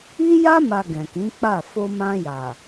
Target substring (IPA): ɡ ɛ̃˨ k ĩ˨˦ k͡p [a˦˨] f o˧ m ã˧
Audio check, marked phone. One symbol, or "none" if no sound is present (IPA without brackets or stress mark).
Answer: a˦˨